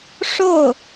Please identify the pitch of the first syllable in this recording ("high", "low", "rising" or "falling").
falling